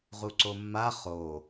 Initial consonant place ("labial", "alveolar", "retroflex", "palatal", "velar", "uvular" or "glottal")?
uvular